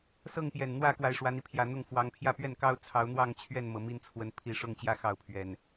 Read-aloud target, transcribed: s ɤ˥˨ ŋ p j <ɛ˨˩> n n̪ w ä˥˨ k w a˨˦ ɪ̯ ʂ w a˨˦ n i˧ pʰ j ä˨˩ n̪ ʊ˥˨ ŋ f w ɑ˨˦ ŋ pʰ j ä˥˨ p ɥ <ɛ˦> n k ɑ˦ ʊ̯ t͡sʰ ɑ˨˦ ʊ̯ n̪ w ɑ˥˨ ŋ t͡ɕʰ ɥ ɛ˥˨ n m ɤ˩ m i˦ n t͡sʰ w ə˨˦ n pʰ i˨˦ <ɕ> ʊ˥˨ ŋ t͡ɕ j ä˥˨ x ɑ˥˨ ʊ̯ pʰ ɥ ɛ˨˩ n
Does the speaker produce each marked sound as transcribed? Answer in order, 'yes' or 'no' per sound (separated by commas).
yes, no, no